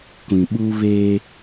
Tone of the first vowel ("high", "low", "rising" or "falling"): low